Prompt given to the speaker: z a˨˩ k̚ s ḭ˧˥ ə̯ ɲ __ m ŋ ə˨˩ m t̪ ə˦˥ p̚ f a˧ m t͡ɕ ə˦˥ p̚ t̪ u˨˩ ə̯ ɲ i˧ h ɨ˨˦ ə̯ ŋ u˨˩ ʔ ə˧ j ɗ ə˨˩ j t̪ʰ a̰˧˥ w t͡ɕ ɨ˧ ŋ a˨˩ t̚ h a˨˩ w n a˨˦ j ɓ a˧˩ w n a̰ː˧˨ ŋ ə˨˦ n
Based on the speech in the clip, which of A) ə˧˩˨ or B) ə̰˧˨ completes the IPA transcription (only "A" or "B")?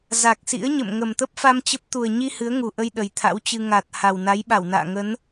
B